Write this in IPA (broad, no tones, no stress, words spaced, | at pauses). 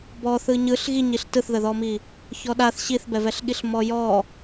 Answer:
bɔθɯ ɲɯɬ ɣiɲiɬ tɯθðəðɔmi | çɔɗaθ ɕiθbɛvɛɬɠiɬ mɔjɔ